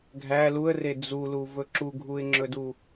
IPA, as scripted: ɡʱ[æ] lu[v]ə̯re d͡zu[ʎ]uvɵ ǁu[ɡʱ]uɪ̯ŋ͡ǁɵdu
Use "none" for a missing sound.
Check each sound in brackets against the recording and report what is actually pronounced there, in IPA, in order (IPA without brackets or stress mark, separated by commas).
æ, none, l, ɡʱ